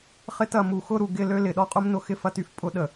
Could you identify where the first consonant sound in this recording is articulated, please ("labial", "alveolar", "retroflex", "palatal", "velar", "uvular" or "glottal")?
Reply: uvular